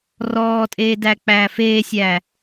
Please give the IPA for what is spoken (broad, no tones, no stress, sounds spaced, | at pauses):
r ɔː tʼ eː d æ k͡p æː f eː sʲ æː